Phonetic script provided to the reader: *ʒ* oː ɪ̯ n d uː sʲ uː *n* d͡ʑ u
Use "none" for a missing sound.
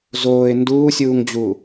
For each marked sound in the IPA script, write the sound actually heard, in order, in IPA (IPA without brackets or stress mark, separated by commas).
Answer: z, ŋ